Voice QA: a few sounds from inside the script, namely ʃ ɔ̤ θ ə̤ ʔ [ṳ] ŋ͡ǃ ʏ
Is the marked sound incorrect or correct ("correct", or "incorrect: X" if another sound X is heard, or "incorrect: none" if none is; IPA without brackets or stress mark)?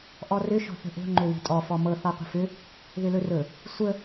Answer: incorrect: o̤